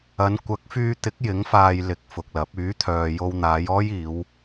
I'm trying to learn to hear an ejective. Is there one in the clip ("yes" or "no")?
no